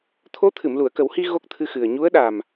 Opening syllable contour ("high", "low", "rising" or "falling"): rising